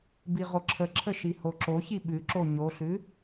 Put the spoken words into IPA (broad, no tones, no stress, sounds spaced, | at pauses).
b i ʁ o ǁʰ ə ǁʰ ə ʃ i h o ǁ o ç i ɓ ʉ ǁ o ɲ o ɬ ʉ